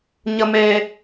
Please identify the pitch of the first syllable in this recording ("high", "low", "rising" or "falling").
low